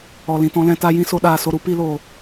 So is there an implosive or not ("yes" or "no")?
yes